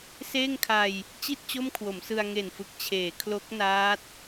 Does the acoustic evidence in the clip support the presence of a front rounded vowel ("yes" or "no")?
no